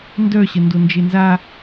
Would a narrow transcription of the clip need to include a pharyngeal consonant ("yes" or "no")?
no